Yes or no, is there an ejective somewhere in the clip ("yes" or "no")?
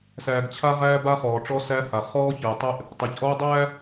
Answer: no